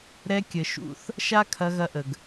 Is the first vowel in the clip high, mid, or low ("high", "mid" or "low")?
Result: mid